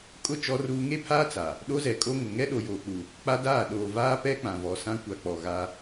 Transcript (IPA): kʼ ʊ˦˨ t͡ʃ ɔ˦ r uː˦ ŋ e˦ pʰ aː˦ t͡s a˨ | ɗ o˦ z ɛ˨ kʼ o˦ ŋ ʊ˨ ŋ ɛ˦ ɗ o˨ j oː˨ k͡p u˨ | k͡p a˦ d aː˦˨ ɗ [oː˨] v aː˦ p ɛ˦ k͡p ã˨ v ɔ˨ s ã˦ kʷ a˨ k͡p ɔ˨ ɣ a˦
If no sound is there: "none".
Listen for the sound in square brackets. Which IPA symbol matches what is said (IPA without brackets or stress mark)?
oː˨